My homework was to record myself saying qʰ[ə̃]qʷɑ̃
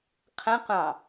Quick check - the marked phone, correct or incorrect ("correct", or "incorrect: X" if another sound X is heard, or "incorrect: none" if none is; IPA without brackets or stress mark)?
correct